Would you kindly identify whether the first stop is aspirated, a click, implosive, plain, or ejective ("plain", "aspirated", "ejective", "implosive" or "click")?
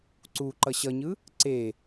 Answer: click